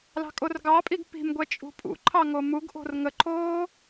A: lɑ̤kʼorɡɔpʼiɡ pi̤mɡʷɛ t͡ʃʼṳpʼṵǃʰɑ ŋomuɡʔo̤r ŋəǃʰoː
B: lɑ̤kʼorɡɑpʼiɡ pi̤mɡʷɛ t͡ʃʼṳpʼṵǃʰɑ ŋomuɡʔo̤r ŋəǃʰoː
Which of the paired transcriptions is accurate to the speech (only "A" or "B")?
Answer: B